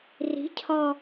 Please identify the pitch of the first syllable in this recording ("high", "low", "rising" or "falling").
rising